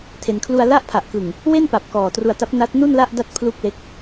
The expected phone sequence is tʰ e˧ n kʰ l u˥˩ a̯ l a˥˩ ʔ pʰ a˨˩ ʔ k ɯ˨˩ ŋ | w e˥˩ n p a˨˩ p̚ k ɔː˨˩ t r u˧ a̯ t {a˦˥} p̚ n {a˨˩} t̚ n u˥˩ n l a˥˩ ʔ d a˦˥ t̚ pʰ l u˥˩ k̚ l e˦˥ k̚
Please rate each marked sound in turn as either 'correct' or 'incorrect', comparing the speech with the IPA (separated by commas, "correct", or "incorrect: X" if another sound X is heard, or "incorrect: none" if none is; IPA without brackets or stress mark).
correct, incorrect: a˦˥